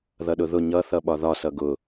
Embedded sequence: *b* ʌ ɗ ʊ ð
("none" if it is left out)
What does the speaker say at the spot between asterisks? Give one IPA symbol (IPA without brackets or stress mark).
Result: ð